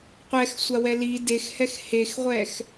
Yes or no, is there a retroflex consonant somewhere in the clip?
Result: no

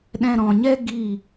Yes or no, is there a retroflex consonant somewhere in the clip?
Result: no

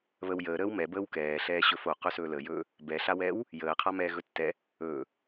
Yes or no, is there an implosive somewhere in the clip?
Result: no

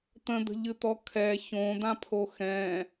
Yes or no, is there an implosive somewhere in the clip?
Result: no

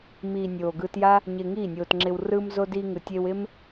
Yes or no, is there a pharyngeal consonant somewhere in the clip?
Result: no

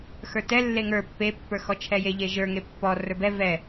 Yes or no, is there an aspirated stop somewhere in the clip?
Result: yes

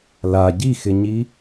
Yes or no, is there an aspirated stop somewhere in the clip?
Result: no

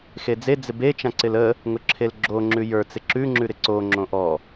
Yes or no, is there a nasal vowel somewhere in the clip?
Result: yes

